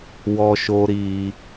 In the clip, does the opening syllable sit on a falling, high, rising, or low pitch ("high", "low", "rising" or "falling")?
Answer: high